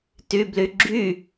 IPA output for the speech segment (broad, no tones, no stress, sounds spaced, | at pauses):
t y b l y ɡ͡ǁ y